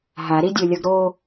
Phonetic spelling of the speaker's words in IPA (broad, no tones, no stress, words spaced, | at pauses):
ɦaɾidʲolʲʌɡ ɾo